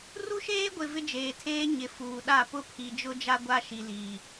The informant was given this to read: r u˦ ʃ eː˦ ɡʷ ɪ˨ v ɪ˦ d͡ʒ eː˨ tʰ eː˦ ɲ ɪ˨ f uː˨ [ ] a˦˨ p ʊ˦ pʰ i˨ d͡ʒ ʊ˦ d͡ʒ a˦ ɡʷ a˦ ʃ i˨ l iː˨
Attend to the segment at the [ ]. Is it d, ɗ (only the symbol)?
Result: ɗ